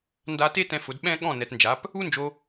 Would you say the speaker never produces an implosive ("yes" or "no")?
no